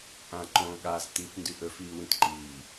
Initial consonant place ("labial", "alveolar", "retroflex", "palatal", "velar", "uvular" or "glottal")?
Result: glottal